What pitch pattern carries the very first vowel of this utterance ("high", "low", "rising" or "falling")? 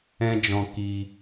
high